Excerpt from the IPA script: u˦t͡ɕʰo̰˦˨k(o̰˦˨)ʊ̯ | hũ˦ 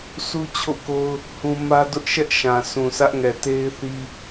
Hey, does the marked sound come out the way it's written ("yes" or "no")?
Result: no